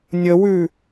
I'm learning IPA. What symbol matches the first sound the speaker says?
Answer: nʲ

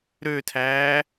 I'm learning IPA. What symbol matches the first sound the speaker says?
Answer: ɾ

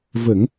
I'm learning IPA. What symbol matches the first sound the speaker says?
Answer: v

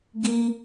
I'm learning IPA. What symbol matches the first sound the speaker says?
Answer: ɡ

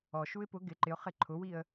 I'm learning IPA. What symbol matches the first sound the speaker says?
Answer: ɔ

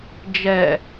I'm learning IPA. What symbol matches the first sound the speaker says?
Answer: d͡ʒ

